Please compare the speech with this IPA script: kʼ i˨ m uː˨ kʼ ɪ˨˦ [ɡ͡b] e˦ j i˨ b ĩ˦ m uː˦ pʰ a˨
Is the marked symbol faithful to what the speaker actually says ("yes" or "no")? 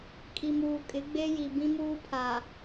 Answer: yes